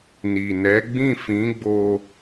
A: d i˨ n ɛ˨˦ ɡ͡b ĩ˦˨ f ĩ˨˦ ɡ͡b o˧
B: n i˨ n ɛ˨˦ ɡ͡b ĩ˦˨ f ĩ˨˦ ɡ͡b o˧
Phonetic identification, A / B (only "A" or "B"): B